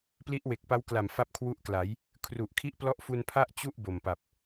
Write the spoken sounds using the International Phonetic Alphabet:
p l i˦˥ ʔ w e˨˩ k̚ p a˦˥ w k l a˨˩ m f a˥˩ p̚ kʰ w u˥˩ ʔ k l a˩˦ j | kʰ r u˨˩ ʔ kʰ i˦˥ ʔ p l ɔ˦˥ ʔ f u˧ n pʰ a˥˩ ʔ t͡ɕ u˥˩ ʔ b o˨˩ m p a˨˩ p̚

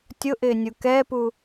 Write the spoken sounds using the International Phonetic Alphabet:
tʲ ʊ ʔ ɪː nʲ u k ɛː p u

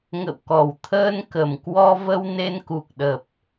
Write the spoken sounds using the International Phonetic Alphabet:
ŋ ə̰˧˨ w k ɔ˨˩ w t̪ʰ əː˧ n k ə˨˩ m k w ɔ˧ v ə˧ w n e˧ n k u˨˩ k̚ ɗ ə˨˩ p̚

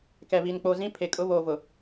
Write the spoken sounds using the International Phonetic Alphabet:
k ɛ˨ β i˨ n k͡p oː˨ z ĩ˦ pʰ e˨ kʼ ʊ˦ β oː˨ v ʊ˨

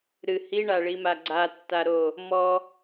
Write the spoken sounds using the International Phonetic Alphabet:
ɾ ɨ h i ɳ a ɭ i m a ɡ͡ǀ a tː a ɾ o | m ɔ

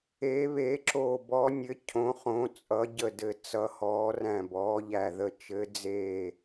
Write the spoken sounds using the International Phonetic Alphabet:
eː˨˦ β e˨˦ ǁ oː˧˩ b ɔ˨˦ nʲ ɘ˨˦ cʰ õ˨˦ χ õ˨˦ t͡sʼ ʌ˨˦ ɟ ə˧˩ d ɘ˧˩ t͡s ʌ˨˦ h ɔː˨˦ r æ̃˧˩ b ɔː˨˦ ʎ æ˧˩ ð ə˧˩ t͡ʃ ɘ˨˦ d͡z eː˧˩

